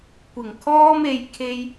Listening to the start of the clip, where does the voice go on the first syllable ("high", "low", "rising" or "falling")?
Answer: low